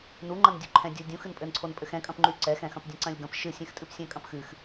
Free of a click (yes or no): no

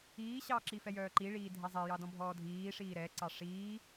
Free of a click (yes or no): no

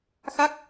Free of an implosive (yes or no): yes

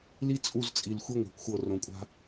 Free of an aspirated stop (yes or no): yes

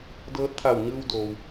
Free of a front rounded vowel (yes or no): yes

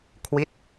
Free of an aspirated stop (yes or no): no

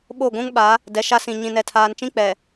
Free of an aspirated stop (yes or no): no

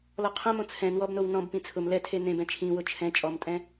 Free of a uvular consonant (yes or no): no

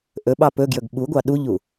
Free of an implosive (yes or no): no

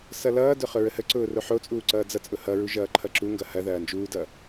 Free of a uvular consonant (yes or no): no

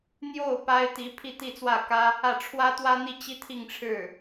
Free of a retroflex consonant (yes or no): no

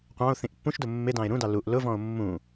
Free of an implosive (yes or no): yes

